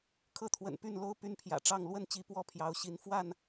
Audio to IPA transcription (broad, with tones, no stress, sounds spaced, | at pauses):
kʰ ɤ˥˨ t̪ʰ w ə̰˨˩ n p y˥˨ n l o˦ ʊ̯ p y˦ n pʰ j ä̰˨˩ ʈ͡ʂ ɑ˥˨ ŋ l w ə˥˨ n t͡ɕ i˨˦ p w ɔ˦ pʰ j ɑ˨˦ ʊ̯ ɕ i˨˦ n f w a˥˨ n